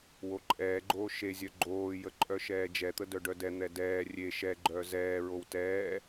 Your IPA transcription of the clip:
w o ǃʼ ɛː ɡ͡ǃ oː ʃ e zʲ œ ɡ͡ǃ oː j ə ǃʼ œ ʃ ɛː d͡ʒ ɛ t̪ ə d œ ɖ œ d ɛ n̪ ɛ d ɛː rʲ e ʃ ɛ ɡ͡ǃ œː z ɛː ɹ o w t ɛː

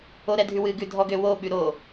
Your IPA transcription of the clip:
o ɾ ɛ dʱ ʉ w ɨ ɡ ʉ dʱ ɔ ɡ ø w o ɓ ʉ ɾ o

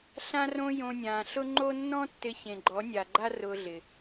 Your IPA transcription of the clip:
ɬ ã˦ r õ˦ j õ˧ nʲ ãː˨ ɬ ʊ˦ ŋ͡ǃ o˦ nː ɔ̃˦ tː ɪ˧ ç ẽ˨ ɡ͡ǃ ɔ˨˦ nʲ a˨ ɡ͡ǃ a˦ r ʊː˧ ɮ ɪ˨

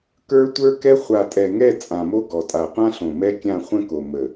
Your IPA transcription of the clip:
k ə˞˦ tʷ ə˞˦ k ɛ˦ χʷ a˨ tʼ ɛ˨ ŋ ɛ˦˨ t͡sʼ ã˨ m o˦ ɡ ɔ˨ tʼ a˨ qʷ ã˦ ɬ õ˨ m ɛ˦ kʲ ã˦˨ χʷ ə̃˦ k o˨ m ə˨

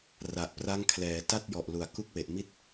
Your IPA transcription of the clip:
r a˨˩ ʔ p r a˦˥ ŋ kʰ l ɛː˩˦ t a˥˩ t̚ j ɔ˨˩ ʔ l u˨˩ a̯ k u˥˩ k̚ w e˨˩ ʔ m i˥˩ t̚

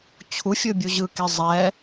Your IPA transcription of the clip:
t͡ɕʰ u fʲ ɯ bʲ u ʑ ɯ k e zˤ ɛ

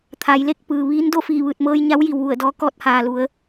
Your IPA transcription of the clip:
t̪ʰ a˩˧ j l e˥˨ k̚ p ɯː˩ ʋ iː˧˥ n d o˥˨ f iː˧˩ ʋ ɯː˧˩ t̚ m ɤː˧ j ɲ a˧˥ w j i˩ w ʋ u˧˩ ə̯ d ɔː˧ k ɔː˥˨ t̚ h aː˩ l u˩˧ ə̯

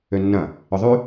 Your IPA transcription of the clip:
ø nː ɐ̃ | ʏ ðˤ y

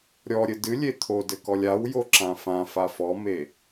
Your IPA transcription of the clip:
ɾʲ ɔ ɾʲ ɘ d ɨ lʲ e t̪ʰ o d ɘ k ɔ lʲ a w j o ǁ ã f ã f a f ɔ m e

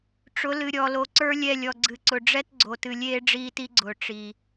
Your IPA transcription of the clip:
ʈ͡ʂ ʊ˨˦ l ɨ˨ ɾʲ ɔ˨ l o˨ ǀ ə˞˦ lʲ ɛ˦˨ lʲ ɔ˨ ɡ͡ǀ ɨ˨ ǀ ʊ˨ ɖ͡ʐ ɛ˦ t ɡ͡ǀ o˨ t ɨ˨ lʲ eː˦ ɖ͡ʐ iː˦ t i˦ ɡ͡ǀ ʊː˨ ʈ͡ʂ i˨

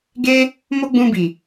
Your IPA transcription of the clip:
ɡ e˦ | m o˦ ɡ͡b ũ˧ b i˨

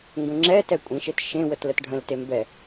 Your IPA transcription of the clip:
ŋ ɡ ə̃ ŋ͡ǁ ɛ t ɛ kʷʼ ĩ ʃ e t ʃ ẽ w ə t l ə t ɖʱ ə̃ l t e m b ɛ

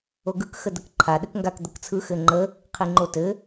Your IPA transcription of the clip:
o ɡ ɯ k x ə d ə k ǃʰ a ɗ ɘ k ŋ ɡ a k d̪ ə k t͡sʰ ɯ x ɘ ŋ͡ǃ ə | qʰ i ŋ͡ǃ o t ɘ

